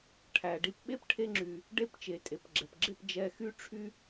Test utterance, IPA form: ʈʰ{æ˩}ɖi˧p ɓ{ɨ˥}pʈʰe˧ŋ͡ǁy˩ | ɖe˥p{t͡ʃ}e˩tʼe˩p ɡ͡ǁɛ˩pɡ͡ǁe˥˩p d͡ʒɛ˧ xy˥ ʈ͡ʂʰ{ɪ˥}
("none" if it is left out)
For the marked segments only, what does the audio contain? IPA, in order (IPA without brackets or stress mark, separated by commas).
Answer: æ˩, e˥, t͡ʃ, y˥